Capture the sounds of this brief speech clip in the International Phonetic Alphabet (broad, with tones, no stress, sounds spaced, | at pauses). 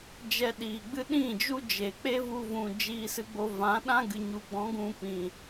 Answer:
d͡ʒ ɛ˧ ɗ iː˨ ɡ͡b ɨ˦ ɗ ĩ˦˨ d͡ʒ u˦ d͡ʒ e˨ k͡p e˦ v u˧ v ũ˨ d͡ʒ iː˧ s ɨ˧ ɡ͡b o˧ v ã˨˦ ɗ ã˦ ɡ ɨ˨ ɲ u˨ ɡ͡b ɔ̃˨˦ ɡ ũ˧ p ĩ˨